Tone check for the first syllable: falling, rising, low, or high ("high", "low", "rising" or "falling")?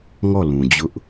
falling